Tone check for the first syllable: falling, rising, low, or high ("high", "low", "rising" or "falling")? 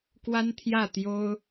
high